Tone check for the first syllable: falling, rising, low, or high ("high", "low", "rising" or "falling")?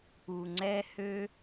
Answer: low